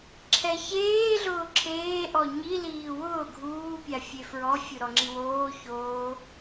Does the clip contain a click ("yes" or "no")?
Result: yes